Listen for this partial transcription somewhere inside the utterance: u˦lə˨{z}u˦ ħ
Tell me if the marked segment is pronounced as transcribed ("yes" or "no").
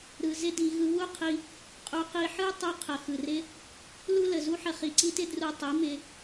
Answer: yes